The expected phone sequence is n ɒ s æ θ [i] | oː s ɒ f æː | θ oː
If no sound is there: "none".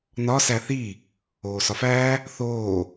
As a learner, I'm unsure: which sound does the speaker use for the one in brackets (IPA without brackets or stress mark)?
i